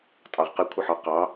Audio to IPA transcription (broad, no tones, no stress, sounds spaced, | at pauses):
tʼ ɑ ʁ q ɪ kʷʰ ɪ ħ ɒ q ɑ